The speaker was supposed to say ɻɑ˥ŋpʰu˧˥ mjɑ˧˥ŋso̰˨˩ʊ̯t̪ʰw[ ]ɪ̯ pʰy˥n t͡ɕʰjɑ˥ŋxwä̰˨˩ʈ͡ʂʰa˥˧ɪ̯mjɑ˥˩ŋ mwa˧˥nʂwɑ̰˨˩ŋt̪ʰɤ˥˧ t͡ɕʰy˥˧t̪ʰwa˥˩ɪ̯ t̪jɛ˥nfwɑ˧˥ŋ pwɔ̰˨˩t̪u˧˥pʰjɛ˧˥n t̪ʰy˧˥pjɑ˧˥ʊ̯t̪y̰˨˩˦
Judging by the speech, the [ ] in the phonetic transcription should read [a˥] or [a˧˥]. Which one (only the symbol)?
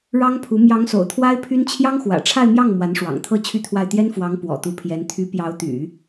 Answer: a˥